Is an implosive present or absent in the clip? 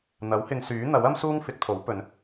absent